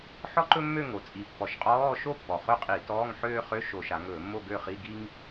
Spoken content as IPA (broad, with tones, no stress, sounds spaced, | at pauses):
ħ ɔ˥ ǃ ɵ˥ mː ø˥˧ ŋ o˩˧ t͡sʼ i˩ pː ɔ˩˧ ʃ qʼ ɔː˧˥˧ ʃ o˥˧ pː ɔ˩ χ ɵ˥˧ qʼ i˧˩˧ t ɔː˧˥˧ ŋ ħ øː˥ χ ø˧˥˧ ʃ o˧˩˧ ʃ a˩˧ ŋ ɵː˧˩˧ mː o˥˧ ɡ ø˥˧ χ i˧˥˧ ɡ i˥ ŋ